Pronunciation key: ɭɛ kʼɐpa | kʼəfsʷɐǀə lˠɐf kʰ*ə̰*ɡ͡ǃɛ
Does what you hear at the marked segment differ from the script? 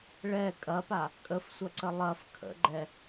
no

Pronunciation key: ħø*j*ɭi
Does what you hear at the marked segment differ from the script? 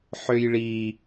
no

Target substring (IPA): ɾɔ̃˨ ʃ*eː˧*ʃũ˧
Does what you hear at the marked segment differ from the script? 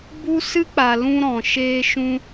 no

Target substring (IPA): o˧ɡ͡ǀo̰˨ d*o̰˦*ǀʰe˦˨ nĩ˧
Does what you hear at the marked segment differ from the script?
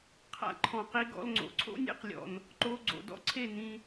yes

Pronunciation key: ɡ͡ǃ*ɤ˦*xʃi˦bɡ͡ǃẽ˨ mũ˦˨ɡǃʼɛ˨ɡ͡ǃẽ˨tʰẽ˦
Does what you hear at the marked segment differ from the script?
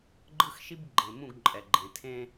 yes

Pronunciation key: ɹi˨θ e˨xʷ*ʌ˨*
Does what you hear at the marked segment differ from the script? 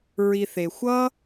yes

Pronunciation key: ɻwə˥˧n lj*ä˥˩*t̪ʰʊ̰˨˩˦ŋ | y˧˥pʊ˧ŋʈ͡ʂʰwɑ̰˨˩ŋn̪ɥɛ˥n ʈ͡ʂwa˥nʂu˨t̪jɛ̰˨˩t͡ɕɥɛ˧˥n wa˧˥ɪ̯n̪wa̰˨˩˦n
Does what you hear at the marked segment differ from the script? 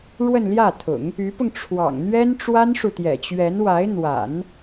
no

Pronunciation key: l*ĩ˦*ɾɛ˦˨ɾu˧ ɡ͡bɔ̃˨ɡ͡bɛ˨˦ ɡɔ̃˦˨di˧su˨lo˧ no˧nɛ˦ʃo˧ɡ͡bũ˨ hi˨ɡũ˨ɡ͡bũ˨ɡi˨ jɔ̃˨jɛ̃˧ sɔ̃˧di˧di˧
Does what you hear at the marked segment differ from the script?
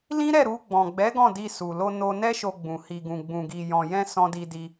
no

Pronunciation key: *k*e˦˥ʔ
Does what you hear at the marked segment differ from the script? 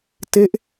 yes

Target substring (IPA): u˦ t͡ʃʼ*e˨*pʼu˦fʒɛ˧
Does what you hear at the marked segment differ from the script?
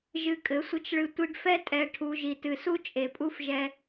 no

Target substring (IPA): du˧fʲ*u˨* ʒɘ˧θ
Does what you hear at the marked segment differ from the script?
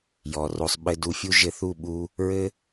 yes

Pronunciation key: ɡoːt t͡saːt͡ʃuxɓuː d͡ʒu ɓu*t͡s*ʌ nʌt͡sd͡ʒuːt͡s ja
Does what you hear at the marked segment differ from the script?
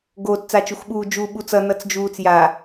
no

